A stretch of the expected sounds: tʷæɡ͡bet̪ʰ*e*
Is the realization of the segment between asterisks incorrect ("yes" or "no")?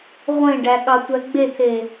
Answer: no